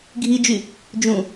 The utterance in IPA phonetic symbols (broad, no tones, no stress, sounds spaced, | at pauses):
ɡʱ i d͡ʒ y | d͡ʒ ũ